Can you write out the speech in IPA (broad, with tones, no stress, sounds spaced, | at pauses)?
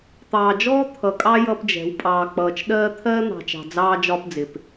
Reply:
t̪ ɑː˨ d͡ʒ ɔː˦ t̪ʰ ʌ˨ kʼ ɑ˦ j ʌ˦ p d͡ʒ ɛ̤˨˦ w pʼ ɑː˨ k͡p ʌː˨ t͡ʃ ɗ ɜː˦ t̪ʰ ɜː˦ n̪ ɑ̤˨ t͡ʃ ɑ̤˨ d͡z ɑː˦ d͡ʒ ɒ˦ p d͡z ɪ˨ p